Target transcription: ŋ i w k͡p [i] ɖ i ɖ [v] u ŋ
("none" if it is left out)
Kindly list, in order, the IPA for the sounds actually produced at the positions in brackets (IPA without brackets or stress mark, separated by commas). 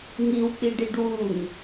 i, w